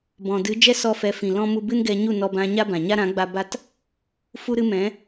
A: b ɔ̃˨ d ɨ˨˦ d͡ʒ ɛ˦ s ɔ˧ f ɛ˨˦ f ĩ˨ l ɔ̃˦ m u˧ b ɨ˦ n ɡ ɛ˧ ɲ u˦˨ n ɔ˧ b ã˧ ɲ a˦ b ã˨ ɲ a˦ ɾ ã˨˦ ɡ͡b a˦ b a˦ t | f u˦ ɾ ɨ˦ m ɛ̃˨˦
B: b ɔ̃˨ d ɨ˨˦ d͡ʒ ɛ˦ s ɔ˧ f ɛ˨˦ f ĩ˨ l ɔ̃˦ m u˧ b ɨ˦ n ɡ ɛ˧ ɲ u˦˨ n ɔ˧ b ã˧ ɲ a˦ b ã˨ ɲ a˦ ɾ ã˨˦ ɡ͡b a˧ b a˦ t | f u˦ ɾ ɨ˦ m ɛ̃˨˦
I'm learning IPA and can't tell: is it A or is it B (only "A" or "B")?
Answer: B